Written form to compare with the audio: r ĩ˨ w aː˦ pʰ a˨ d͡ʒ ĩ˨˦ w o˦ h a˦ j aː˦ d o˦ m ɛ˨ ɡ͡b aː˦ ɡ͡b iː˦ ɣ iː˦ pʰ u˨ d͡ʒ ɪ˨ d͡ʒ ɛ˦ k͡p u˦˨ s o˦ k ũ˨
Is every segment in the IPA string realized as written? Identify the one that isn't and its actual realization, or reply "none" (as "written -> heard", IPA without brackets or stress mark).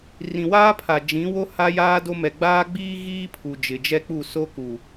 ũ˨ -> u˨